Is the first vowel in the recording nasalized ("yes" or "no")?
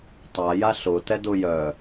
no